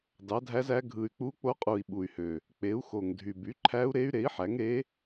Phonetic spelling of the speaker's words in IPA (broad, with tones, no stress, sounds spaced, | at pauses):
d ɑ˩˥ dʱ æ˧˥ z æ˧˥ ɡʱ ɯ˨˩ y̯ k͡p u˧˥ k͡p o˧˥ qʼ u˨˩ i̯ ɓ u˨˩ y̯ h ø˨˩ | k͡p e˩˥ u̯ x o˨˩ ŋ dʱ y˨˩ b y˩˥ ǃʰ æ˧˥ u̯ ɾ e˧˥ y̯ ɾ e˩˥ i̯ ħ æ˩˥ ŋ ɾ e˧˥